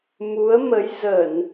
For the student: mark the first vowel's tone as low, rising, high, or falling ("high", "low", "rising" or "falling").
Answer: rising